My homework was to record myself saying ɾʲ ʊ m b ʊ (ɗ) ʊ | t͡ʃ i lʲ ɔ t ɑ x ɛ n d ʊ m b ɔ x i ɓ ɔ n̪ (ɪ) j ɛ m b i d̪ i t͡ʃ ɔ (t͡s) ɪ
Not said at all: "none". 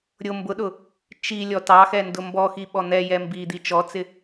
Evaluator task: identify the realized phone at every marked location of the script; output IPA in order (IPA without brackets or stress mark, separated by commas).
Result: ɗ, ɛ, t͡s